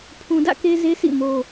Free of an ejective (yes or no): yes